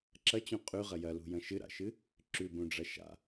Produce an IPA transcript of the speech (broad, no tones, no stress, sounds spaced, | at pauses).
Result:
ǁ ɐ t͡ɕ ũ qʼ ʉ ʁ ɐ j ɐ l ṳ j ɐ̃ ʃ ɨ ɾ a̰ ʃ ɨ | ǁ ʉ b ũ ɖ͡ʐ ɐ ʃ a̰